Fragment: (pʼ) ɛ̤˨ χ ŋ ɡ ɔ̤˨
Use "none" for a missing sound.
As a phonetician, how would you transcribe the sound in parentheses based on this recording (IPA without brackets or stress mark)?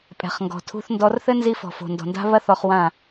pʼ